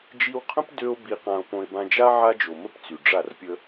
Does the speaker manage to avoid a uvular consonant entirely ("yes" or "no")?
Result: no